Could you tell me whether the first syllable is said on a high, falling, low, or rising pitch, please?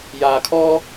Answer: low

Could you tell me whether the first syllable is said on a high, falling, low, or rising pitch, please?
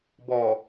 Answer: low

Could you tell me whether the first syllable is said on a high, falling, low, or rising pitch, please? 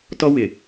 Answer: high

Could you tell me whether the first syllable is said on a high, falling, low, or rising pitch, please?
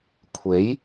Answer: rising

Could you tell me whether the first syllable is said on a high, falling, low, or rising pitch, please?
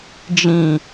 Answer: low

